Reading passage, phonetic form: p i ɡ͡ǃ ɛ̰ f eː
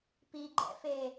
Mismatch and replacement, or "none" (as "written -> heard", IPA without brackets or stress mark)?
none